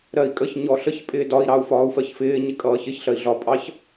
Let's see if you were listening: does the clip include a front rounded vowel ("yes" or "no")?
no